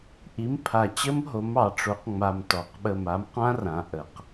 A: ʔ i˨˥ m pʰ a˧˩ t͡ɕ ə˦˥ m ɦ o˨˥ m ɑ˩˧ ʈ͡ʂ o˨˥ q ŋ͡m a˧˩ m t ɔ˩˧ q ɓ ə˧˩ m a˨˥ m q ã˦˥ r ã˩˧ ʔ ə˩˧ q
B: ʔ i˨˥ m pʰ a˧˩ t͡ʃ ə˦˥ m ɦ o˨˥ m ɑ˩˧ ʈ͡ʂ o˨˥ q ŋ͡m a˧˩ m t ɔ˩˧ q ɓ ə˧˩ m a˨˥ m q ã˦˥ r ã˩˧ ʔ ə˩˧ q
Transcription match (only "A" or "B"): A